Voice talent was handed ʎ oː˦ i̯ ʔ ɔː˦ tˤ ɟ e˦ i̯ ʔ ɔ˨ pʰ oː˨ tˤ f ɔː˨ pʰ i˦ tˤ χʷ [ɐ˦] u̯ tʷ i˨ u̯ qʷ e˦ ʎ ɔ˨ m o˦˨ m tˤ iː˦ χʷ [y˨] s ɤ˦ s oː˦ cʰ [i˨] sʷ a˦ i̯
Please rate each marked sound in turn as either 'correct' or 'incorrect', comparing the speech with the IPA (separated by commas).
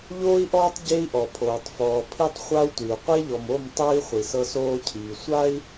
incorrect, incorrect, incorrect